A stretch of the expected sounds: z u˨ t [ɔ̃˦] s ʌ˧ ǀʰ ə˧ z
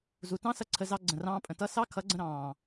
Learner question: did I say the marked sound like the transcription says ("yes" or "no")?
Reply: no